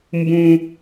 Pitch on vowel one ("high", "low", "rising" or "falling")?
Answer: high